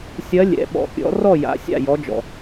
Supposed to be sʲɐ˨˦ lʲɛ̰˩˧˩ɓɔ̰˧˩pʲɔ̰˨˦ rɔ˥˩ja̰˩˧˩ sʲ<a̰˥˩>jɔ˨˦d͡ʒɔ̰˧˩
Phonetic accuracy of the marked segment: correct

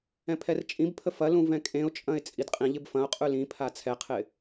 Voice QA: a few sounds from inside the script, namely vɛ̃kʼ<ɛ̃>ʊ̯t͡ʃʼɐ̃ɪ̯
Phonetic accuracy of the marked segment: incorrect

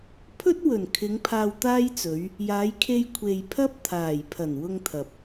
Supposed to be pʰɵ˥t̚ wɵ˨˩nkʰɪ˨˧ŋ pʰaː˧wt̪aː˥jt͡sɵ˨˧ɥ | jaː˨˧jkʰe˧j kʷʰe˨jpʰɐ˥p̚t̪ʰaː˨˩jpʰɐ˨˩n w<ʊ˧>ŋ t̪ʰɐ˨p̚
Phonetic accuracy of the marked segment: correct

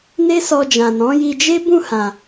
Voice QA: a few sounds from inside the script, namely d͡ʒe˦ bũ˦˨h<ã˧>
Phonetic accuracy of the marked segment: incorrect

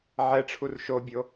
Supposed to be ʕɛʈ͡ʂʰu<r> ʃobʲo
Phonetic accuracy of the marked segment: correct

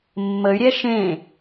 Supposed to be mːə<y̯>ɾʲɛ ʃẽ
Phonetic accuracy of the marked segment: correct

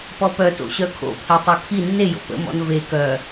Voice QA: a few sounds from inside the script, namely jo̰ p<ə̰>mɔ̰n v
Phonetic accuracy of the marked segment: correct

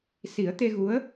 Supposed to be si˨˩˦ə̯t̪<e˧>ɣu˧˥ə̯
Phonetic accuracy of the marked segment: correct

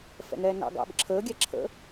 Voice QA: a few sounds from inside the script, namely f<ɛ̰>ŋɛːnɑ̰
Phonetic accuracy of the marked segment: correct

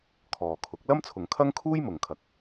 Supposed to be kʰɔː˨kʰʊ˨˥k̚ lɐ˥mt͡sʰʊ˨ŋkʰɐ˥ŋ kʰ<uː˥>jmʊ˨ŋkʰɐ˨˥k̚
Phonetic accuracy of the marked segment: correct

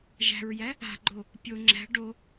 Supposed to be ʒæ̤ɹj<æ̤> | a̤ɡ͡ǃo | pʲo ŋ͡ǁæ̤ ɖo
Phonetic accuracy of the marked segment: incorrect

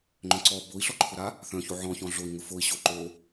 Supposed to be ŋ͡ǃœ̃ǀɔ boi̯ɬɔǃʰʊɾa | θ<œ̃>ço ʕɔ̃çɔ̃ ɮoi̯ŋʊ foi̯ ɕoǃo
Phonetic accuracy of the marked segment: correct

